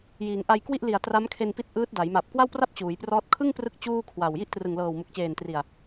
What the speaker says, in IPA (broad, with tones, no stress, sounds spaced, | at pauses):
j iː˩˦ ŋ ʔ a˧ j k w i˥˩ ʔ l i˨˩ a̯ t r a˦˥ m kʰ e˧ n p i˦˥ t̚ ʔ ɯː˦˥ t̚ d a˩˦ j m a˨˩ p̚ k w a˥˩ w p r a˥˩ p̚ t͡ɕ uː˩˦ j p r ɔː˥˩ t̚ kʰ ɯ˥˩ ŋ p r ɯ˦˥ k̚ t͡ɕ uː˥˩ kʰ w a˨˩ w j i˥˩ ʔ t r ɯ˨˩ ŋ l ɤː˨˩ w m u˨˩ k̚ t͡ɕ eː˨˩ n t r i˨˩ a̯